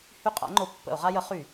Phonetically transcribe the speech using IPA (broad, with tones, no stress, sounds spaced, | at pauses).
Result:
h y˦˨ qʼ a̰˨˥ ŋ͡ǃ o˨˥ pː ə̰˧˩˧ o̯ ʁ a˦ j ə˨˥ χ y˧˩˧